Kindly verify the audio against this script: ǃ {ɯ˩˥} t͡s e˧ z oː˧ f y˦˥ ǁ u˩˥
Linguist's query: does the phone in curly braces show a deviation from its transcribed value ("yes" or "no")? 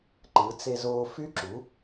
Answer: no